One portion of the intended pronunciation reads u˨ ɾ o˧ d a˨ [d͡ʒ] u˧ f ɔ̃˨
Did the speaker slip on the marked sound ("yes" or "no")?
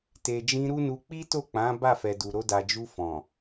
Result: no